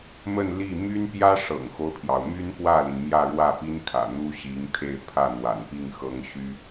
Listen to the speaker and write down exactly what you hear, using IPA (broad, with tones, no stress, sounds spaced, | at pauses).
m ə˥˧ n l i˥˩ m y˥ n p j ä˥ ʂ ɤ̰˨˩ ŋ x o˦ ʊ̯ pʰ j ɑ˩ ʊ̯ m y˥ n f w ä˥˩ l i˩ n m j ä˥˧ ɻ w ä˥˩ p i˥ n kʰ ä̰˨˩ n̪ u˥ ɕ i˧˥ ŋ t̪ʰ e˥˧ ɪ̯ pʰ ä˥˩ n̪ w a̰˨˩ n p i˥˩ ŋ x ɤ˥ ŋ ɕ y˥